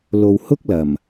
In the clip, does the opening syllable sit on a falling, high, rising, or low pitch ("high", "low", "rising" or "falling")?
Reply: low